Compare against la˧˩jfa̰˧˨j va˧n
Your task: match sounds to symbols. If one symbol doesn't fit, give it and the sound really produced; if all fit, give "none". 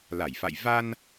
none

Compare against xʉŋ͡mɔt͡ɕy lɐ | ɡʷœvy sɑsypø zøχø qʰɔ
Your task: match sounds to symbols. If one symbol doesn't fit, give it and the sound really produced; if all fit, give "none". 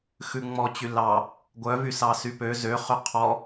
ɐ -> ɑ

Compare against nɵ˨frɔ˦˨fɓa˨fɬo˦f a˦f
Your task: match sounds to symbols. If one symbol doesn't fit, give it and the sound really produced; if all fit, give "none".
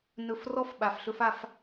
o˦ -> ɵ˦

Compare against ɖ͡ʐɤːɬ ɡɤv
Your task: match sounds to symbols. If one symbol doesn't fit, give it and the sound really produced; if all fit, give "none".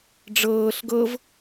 none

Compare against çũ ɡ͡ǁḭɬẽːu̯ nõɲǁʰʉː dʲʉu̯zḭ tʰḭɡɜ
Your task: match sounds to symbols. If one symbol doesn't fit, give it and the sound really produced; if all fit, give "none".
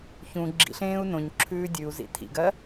none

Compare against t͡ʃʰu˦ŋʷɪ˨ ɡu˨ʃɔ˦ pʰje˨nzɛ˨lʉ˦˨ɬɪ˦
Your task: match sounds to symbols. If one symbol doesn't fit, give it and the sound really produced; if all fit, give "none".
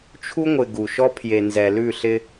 none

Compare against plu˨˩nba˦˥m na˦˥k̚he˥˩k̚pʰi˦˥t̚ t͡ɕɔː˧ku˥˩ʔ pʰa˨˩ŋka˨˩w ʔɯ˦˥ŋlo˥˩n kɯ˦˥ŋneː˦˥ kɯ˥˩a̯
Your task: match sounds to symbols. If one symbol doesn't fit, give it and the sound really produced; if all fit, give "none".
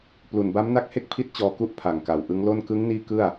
eː˦˥ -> iː˦˥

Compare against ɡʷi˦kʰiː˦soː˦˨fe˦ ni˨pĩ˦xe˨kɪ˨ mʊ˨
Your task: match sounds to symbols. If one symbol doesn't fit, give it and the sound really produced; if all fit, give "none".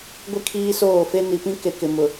x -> k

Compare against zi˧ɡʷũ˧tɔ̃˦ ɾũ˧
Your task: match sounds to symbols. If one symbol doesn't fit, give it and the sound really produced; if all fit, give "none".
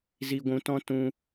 ɾ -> t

